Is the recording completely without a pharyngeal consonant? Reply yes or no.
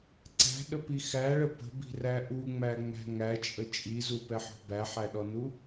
no